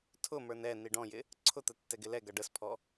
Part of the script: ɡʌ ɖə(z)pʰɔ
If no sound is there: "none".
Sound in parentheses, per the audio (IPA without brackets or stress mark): s